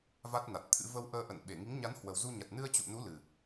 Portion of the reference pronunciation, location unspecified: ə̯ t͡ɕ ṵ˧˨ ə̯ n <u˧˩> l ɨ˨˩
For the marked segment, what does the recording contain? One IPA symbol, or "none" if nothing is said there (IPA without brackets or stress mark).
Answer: u˨˦